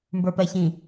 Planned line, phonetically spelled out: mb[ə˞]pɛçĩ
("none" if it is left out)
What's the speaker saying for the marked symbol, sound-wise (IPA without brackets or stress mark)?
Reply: ə˞